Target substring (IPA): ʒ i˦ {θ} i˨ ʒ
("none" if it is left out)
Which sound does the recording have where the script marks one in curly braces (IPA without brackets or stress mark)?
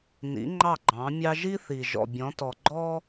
θ